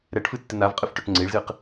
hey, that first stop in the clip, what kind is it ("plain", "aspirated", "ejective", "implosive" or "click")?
plain